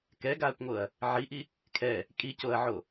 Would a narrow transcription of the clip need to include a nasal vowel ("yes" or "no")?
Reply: no